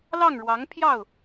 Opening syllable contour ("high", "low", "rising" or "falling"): falling